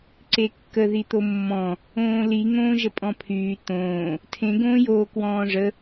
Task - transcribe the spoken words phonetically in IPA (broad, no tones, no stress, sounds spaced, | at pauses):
ǀ e kː ə ð i t̪ o mː ɔ̃ | õː l i ŋ õː ʒ ə pʼ ɔ̃ pʰ yː t̪ õː | tʰ ẽ ɡ õː j oː k w ɔ̃ː ʐ ə